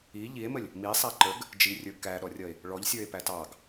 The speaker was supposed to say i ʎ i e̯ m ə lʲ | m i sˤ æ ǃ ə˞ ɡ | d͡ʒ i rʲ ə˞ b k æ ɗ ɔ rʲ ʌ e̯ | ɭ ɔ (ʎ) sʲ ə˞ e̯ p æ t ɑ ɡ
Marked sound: correct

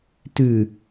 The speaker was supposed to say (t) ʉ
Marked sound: correct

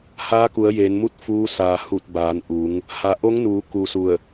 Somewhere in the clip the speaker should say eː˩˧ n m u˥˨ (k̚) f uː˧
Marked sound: incorrect: t̚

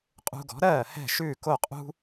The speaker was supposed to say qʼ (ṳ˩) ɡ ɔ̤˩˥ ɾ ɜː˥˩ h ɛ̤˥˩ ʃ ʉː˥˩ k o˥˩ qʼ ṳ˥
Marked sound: incorrect: ṳ˧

